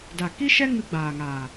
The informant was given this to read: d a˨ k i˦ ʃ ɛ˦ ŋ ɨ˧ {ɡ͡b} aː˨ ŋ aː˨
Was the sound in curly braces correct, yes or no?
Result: yes